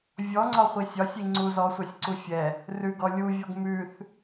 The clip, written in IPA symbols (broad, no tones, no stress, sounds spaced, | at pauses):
vʲ ɔ ŋ͡ǀ ɒ χʷ i sʲ ɒ sʲ i ŋ͡ǀ u z ɔ sʷ a sʲ ǀ u fʲ ɛ | r ʉ ɡ ɔ lʲ u vʲ ɔ ɡ m ʉ θ